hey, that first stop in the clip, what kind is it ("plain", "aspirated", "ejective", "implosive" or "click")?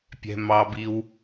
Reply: plain